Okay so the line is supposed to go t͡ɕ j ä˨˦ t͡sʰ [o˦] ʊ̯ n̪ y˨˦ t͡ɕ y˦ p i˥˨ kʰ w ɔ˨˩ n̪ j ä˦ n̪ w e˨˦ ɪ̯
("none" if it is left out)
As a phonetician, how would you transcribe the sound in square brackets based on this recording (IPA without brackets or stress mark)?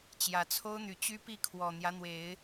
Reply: o˦